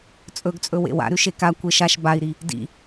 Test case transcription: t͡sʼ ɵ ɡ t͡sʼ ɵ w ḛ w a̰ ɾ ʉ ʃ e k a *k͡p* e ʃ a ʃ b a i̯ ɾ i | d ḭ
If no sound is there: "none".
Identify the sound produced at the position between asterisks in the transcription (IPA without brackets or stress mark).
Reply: kʷ